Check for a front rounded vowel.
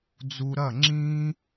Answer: absent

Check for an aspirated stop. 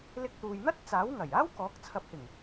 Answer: present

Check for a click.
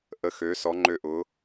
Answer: present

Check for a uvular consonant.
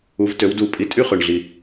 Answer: present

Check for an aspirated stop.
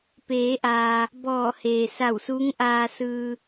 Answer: absent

